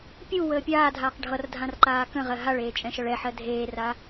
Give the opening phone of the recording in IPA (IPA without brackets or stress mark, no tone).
pʲ